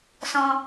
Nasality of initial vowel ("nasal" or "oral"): nasal